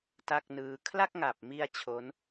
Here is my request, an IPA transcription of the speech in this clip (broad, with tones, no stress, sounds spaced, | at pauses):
t a˥˩ k̚ n ɯː˧ kʰ l a˥˩ k̚ ŋ a˨˩ p̚ m i˧ a̯ t͡ɕʰ o˦˥ n